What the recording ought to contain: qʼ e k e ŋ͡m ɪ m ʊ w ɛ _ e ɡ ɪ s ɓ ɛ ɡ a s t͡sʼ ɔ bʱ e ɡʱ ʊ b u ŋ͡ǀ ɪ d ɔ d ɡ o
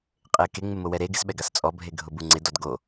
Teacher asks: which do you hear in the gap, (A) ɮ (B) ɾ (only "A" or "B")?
B